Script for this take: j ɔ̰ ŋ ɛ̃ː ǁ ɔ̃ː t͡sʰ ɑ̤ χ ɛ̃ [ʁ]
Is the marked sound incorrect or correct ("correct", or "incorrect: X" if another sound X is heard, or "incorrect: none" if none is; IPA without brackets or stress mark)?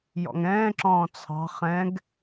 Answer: incorrect: ɡ